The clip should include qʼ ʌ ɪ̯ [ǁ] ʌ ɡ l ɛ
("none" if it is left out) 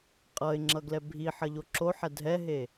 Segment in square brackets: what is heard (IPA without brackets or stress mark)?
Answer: ŋ͡ǁ